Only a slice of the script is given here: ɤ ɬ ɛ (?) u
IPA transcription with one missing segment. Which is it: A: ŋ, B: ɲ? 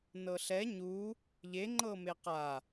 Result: B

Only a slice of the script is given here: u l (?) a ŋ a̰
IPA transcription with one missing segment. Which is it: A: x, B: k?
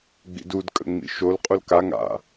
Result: B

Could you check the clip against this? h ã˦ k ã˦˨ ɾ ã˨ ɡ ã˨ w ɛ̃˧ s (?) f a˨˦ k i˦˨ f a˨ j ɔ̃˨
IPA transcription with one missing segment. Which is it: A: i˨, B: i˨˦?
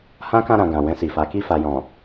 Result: A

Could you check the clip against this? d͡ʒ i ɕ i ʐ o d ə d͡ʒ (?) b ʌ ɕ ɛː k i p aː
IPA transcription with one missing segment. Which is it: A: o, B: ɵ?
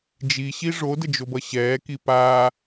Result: A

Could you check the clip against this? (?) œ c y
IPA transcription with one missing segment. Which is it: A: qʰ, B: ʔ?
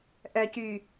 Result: B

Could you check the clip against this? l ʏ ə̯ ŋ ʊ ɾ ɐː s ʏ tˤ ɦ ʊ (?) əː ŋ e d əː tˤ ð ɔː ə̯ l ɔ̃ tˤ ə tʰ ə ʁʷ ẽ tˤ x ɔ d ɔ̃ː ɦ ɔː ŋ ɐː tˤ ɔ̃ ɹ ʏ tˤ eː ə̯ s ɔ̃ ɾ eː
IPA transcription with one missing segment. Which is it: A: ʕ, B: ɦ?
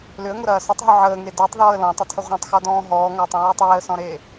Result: A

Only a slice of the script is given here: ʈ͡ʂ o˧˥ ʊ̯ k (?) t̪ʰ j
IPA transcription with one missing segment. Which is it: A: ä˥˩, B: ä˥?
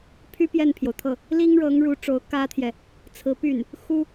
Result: B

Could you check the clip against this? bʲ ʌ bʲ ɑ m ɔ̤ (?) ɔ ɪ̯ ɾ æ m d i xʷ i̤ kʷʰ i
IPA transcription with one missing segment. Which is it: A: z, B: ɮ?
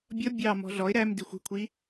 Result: B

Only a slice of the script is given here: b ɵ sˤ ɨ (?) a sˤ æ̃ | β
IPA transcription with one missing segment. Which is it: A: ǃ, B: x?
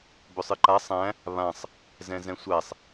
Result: A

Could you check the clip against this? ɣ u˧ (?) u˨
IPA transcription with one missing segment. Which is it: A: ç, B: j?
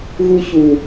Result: A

